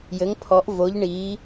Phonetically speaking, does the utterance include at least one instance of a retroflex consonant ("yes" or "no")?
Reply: yes